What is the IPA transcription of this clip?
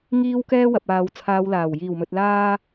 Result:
ŋ iː˥ w k ɛː˥ w ɐ˨ p̚ aː˨ w t͡sʰ aː˨˧ w l aː˨˩ w j iː˨˩ w m ɵ˨ t̚ l aː˧

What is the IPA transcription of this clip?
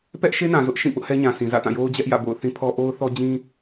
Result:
p ɛ˦ ʔ ʃ e˦ n ã˨ z ʊ˦ ʔ ʃ ĩ˦˨ p ʊ˦ ʔ h ɛ˦ ɲ ã˨ sʰ ĩ˨ z ä̰˦˨ t ã˦˨ j o˦ ʊ̯ d͡ʑ ɛ˦ ʔ j ä̰˦˨ b o̰˦˨ ʊ̯ θ ĩ˦ pʰ ɔ˦ ʔ o˦ ʊ̯ θ ɔ˦ d͡ʑ ĩ˦

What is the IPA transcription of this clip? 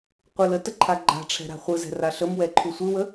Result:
qʷ ɯ l ə t ə ǃʰ a ɡ͡ǃ a̤ ʈ͡ʂʰ ɛ̤ ɾ a̤ χʷ ɯ z ɛ̤ r a ɬ ə m w ɛ ǃʰ u sʷ ɯ w ə

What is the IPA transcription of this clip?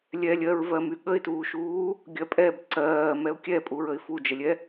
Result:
lʲ ɛ lʲ ɜ ɹ v ɜ m y ɠ ə ɪ̯ t uː ʃ uː | ɡʲ ɜ pʼ ɛ b ǀ ɜː m ɛ ʊ̯ kʲ ɛ pʼ u ɹ ə ɪ̯ f u d͡ʒ ə lʲ ɛ

